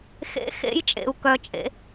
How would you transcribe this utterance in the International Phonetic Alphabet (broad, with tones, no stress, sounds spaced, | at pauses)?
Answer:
x ḛ˧˥ x ḛ˧˥ j t͡ʃʼ ḛ˩˧ u̯ k œ˩˧ t͡ʃʼ ḛ˩˧